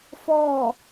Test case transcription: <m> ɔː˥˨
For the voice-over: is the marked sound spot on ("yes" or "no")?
no